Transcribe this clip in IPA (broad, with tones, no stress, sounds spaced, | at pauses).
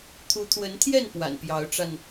t̪ʰ u˨˦ t̪ʰ w ə˨˦ n t̪ʰ j ɛ˥˨ n p w a̰˨˩ n p j ɑ˨˦ ʊ̯ ʈ͡ʂ a˧ n